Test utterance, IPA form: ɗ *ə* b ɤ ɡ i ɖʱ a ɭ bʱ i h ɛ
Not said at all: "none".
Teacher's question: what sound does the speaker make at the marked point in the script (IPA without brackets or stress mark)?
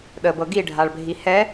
ə